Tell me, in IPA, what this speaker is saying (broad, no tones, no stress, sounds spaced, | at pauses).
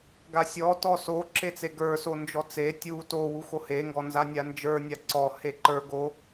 ɡ a sʲ ɔ t ɔ s o ǁ e t͡s e ɡ ə˞ s o n d͡ʒ ɔ t͡s e tʲ u t o w u x o h e ŋ ɡ ɔ n z a nʲ a n d͡ʒ ə˞ nʲ a ǀ ɔ h e ǃ ə˞ ɡ o